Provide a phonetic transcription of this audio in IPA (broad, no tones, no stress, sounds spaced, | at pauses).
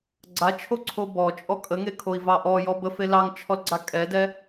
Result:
ɡ͡ǀ a t͡ʃʰ o ǀʰ o b ɔ t͡ʃʼ ɔ kʼ ə ŋ e kʰ o i̯ v ɑ ʔ ɔ j ɔ b ə f e l ɑ ŋ t͡ʃʰ ɔ l ɡ͡ǀ a kʼ ɛ d ɛ